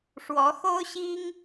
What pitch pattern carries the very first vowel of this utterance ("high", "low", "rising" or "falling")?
rising